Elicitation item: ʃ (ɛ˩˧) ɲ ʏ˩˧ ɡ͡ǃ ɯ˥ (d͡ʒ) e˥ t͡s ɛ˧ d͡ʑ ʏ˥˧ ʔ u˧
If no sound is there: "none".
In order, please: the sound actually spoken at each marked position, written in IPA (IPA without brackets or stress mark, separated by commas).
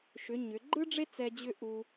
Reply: ʏ˩˧, ɖ͡ʐ